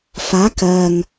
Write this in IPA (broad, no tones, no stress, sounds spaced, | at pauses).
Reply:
f a k ɜ ŋ